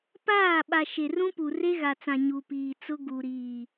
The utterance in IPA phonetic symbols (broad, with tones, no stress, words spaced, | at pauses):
paː˦˨ ɓa˨ ʃe˨rũ˦pu˨ re˦ɣa˨t͡sã˨ ɲu˨piː˨t͡sʊ˦ ɡu˨ɾiː˨